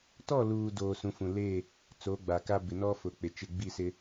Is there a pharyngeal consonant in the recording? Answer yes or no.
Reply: no